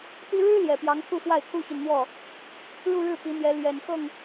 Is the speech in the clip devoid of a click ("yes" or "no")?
yes